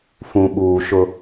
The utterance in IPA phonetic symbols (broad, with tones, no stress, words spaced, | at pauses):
fũ˨ɓuː˨ ʃʊ˦